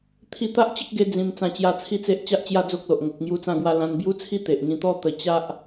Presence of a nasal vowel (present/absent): present